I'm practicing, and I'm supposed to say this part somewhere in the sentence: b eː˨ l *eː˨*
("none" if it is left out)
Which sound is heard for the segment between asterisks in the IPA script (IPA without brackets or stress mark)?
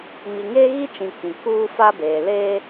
eː˦